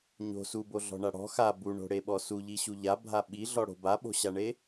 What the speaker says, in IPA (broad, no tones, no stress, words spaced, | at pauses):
ɲo̤ suboɮɔ̤ɳa ɽɔ̤ xa buɳo̤ɽeɓɔ suʎiɕu ʎabʱa ɓiɮɔɽo̤ baɓo̤ɕaɳe